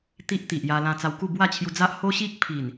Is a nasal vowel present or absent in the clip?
present